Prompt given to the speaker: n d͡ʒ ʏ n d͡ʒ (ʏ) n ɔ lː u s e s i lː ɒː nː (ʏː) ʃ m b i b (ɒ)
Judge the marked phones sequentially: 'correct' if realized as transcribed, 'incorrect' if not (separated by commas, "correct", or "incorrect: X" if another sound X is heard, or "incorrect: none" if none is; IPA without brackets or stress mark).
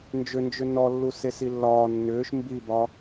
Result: correct, correct, correct